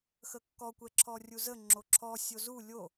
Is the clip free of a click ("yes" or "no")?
no